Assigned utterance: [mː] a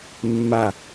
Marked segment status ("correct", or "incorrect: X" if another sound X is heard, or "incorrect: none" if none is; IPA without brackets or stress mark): correct